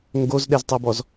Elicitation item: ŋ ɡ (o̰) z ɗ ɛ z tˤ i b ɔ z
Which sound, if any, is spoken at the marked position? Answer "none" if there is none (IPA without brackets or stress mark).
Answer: o